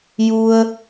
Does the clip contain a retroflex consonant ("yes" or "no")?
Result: no